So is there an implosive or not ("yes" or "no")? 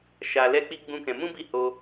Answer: no